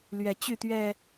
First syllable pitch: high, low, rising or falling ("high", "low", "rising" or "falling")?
low